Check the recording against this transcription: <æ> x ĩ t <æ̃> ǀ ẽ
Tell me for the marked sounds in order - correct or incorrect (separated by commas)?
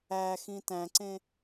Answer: correct, correct